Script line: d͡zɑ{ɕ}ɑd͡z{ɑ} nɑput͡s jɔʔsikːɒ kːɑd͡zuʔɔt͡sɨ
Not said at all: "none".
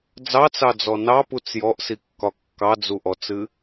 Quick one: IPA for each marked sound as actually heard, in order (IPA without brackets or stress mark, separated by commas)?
t͡s, ɔ